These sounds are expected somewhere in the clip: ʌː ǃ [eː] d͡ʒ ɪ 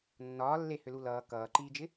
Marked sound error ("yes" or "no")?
yes